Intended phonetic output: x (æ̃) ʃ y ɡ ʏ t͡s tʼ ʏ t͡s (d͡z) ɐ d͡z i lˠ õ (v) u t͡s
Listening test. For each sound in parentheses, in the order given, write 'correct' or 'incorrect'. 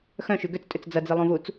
incorrect, correct, correct

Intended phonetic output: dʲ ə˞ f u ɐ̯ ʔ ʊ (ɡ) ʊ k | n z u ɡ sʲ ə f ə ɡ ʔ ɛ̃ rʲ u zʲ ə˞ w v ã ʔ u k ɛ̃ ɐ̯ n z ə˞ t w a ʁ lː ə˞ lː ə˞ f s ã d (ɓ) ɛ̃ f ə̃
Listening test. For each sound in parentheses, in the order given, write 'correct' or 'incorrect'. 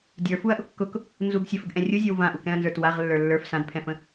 incorrect, incorrect

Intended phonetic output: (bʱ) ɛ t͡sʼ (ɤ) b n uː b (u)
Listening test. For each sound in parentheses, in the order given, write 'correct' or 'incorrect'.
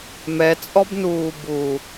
incorrect, incorrect, correct

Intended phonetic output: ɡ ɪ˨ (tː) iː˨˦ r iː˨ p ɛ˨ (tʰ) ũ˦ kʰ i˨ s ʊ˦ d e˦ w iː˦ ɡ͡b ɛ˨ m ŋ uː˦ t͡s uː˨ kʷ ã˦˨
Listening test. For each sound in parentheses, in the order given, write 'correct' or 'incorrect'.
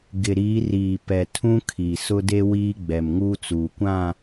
incorrect, correct

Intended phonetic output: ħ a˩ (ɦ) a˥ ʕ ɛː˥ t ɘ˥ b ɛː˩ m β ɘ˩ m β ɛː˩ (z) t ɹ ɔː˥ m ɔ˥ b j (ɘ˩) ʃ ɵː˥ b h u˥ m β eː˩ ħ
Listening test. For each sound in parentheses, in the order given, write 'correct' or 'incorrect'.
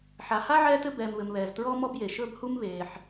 incorrect, correct, incorrect

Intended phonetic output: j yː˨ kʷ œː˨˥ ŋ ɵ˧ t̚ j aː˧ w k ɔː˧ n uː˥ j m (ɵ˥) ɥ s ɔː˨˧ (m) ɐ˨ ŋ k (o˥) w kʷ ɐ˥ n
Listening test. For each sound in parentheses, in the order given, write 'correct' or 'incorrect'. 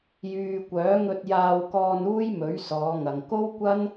incorrect, incorrect, correct

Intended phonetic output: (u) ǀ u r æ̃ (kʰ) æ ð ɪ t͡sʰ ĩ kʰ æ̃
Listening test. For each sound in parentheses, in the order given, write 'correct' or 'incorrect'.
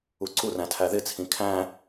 correct, incorrect

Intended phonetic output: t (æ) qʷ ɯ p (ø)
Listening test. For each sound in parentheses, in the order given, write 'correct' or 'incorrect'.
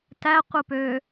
correct, correct

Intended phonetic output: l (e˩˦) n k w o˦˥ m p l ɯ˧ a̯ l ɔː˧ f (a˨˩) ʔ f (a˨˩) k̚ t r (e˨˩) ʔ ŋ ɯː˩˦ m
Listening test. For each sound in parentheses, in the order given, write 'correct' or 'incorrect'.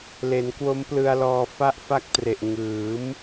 correct, incorrect, incorrect, correct

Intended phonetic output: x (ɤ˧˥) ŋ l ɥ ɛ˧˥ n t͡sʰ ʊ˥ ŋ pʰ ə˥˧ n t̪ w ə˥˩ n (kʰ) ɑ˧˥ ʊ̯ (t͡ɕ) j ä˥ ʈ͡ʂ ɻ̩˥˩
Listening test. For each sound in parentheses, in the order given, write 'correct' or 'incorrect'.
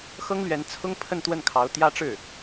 incorrect, correct, incorrect

